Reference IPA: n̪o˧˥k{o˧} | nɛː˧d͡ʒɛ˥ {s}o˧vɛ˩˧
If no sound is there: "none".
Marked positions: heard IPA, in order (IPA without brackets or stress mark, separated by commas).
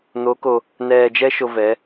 o˧, ʃ